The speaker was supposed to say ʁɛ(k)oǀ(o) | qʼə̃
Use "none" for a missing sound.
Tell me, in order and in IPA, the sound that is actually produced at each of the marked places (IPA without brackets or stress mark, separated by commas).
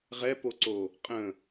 p, o